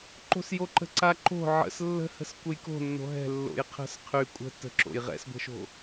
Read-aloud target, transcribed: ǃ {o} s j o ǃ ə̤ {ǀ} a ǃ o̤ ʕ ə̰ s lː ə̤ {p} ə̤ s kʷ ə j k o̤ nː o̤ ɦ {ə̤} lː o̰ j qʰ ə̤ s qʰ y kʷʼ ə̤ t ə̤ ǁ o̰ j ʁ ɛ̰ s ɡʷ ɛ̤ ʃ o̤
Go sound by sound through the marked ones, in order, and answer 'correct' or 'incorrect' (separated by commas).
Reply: incorrect, correct, incorrect, incorrect